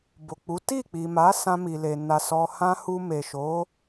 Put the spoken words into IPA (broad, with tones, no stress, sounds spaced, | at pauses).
b o˨ k͡p u˨˦ t i˦˨ k͡p i˨ m a˨˦ s ã˧ m i˨ l e˨ n a˨ s ɔ˨ h ã˧ h u˧ m e˨ ʃ o˨˦